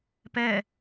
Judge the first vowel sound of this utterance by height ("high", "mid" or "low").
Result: mid